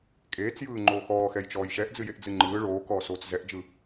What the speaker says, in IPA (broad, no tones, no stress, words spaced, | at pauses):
kʼeːt͡sjɯːŋ͡ǃoː xɔːxɛjt͡ʃɔːj ʃɛʔd͡zɨjeʔd͡zɨ ŋ͡ǃɯː ɭoːkɔːsoːt͡s zɛʔd͡ʒɯ